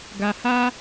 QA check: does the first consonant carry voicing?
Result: yes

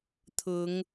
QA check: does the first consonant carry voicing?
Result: no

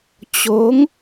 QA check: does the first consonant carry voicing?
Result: no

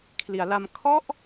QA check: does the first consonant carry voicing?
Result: no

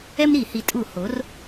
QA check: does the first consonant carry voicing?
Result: yes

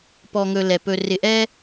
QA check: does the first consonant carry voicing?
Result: no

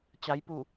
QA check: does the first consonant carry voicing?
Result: no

